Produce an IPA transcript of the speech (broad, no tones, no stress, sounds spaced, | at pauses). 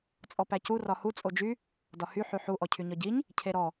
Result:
t͡sʼ ɔ p æ c u r ɒ h u t͡sʼ o d͡ʒ y | d ɒ h y ħ y ħ u ʔ ɔ cʰ y ɲ ɒ ɟ i ɲ | cʰ e ɾ ɔ